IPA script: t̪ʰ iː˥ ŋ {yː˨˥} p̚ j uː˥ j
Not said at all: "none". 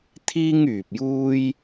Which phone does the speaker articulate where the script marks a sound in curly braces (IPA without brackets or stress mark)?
yː˨